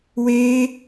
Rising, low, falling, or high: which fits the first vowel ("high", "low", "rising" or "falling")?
high